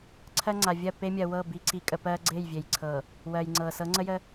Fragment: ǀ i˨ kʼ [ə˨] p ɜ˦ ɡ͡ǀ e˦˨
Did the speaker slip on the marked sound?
no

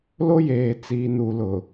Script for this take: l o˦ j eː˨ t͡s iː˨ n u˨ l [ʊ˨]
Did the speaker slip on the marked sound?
no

